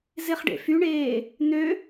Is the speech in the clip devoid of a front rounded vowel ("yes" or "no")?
no